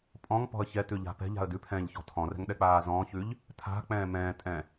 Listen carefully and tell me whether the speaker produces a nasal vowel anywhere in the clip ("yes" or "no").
yes